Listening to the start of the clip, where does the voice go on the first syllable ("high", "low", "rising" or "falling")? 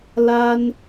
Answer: high